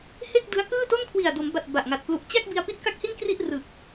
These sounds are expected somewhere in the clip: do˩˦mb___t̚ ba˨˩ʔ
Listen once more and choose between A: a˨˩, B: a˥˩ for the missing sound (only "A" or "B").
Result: A